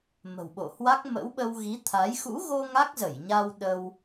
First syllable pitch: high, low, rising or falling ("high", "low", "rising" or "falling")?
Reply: low